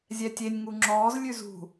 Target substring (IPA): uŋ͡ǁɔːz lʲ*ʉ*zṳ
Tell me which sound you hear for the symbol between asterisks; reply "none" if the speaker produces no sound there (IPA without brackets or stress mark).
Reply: ʉ